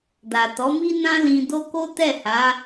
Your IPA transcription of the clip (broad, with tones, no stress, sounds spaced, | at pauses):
d a˨ t ɔ˨˦ m i˦ n ã˦ l ĩ˧ d o˦ k o˦ t ɛ˦˨ h a˨˦